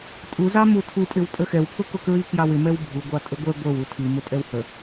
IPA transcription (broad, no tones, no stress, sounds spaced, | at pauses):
tʼ u z ɑ m u tʰ u tʼ ɪ w tʼ ə x ɛ w pʰ ʊ k ʊ k ɹ i k j ɑ w ɪ m ɛ w bʱ u ɡʷ ɑ tʼ ə ɡʷ ɛ ɡʷ ə˞ w u tʰ i m ʊ tʼ ɛ w h ə